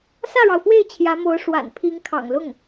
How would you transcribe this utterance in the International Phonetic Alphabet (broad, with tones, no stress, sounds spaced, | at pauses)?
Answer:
s ä˥˩ ɻ ɑ˩ ʊ̯ f w e˥˩ ɪ̯ t͡ɕʰ j ä˧˥ m o˧˥ ʊ̯ ʂ w a̰˨˩ n pʰ i˧˥ ŋ kʰ ɑ̰˨˩ ŋ l ʊ˥˩ ŋ